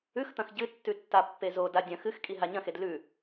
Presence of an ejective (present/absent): present